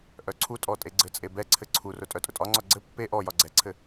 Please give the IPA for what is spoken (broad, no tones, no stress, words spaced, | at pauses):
ʔœǀʰutʼɔ tʼeɡ͡ǀɘt͡sʼe bɛǀʰɘ ǀʰurʊ tʼœtʼʊtʼɒŋ͡ǀɒ ɡ͡ǀɘ pːe ʔɔjɒ ɡ͡ǀɛǀʰɘ